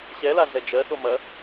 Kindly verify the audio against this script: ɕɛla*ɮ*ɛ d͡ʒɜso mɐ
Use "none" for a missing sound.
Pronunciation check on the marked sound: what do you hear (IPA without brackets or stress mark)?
ɮ